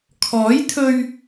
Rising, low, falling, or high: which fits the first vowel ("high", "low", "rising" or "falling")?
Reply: rising